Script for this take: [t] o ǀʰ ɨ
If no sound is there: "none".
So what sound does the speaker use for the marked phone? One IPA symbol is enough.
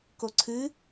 k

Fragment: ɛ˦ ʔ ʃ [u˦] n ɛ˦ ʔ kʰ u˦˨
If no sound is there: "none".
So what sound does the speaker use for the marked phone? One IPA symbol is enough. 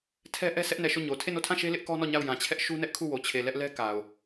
u˦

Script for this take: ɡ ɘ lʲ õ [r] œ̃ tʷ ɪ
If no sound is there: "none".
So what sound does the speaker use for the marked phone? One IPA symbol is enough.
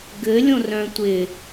r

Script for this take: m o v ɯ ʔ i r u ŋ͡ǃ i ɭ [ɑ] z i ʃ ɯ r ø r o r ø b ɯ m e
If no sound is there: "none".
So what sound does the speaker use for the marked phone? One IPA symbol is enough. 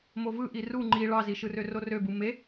ɑ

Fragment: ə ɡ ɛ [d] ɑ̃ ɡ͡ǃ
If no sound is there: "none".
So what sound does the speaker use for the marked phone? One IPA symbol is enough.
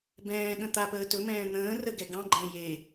ɡ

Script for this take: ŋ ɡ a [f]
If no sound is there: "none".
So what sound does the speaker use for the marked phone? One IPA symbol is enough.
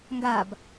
b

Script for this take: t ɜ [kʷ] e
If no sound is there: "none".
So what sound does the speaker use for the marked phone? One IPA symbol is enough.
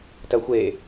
xʷ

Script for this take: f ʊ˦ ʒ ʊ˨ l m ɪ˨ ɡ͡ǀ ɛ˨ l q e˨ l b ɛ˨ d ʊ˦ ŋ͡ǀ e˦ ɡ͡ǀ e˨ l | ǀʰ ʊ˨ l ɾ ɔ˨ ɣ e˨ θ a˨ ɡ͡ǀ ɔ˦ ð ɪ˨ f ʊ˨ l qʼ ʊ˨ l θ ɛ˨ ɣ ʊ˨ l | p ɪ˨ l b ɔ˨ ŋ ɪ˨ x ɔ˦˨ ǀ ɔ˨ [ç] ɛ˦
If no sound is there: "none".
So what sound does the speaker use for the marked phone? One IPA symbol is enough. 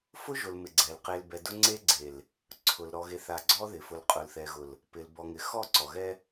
ɣ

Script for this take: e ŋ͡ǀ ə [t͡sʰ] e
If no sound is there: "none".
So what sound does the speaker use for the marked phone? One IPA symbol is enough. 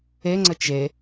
t͡ʃ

